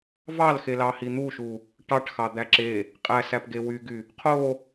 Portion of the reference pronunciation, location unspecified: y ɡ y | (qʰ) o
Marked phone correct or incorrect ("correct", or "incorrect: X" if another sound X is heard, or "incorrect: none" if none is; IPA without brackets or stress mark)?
correct